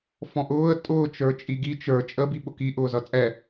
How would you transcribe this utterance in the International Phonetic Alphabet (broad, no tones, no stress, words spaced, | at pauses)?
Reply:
fɔ̃ʔʊːə̯ tʼʊː t͡ʃə˞t͡ʃʼiɡi t͡ʃə˞ t͡ʃʼə biɓʊki ʔʊːzʌt͡sʼɛ